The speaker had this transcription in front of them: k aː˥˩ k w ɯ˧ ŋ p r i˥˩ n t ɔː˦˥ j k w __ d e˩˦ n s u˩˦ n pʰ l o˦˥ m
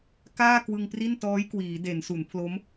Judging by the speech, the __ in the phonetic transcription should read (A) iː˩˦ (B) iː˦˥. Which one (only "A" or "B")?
A